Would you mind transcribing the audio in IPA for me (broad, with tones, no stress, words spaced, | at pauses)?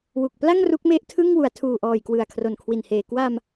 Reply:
wu˨˩k̚ pla˥˩ŋ ru˦˥k̚me˥˩ʔtʰɯ˥˩ŋ wu˩˦a̯tʰuː˨˩ʔɔː˨˩j kwɯ˨˩a̯kʰro˨˩n kʰwi˨˩n heː˨˩ kwa˧m